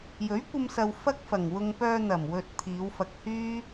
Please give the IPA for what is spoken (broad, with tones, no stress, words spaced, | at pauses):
jɵ˨˥ɥkʷɐ˧msɐ˨w fɐ˥k̚fɐ˨˩ŋwʊ˧ŋ pœː˧n̪ɐ˨˩m wɵ˨t̚ t̪ʰiː˨˧wfɐ˧k̚hyː˥